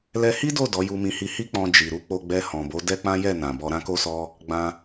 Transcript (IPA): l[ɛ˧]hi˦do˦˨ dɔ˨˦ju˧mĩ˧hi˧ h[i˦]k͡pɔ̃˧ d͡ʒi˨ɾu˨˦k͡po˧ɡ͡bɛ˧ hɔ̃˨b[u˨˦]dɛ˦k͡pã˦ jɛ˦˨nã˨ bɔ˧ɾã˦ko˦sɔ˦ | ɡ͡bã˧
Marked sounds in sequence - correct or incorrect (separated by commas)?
correct, correct, incorrect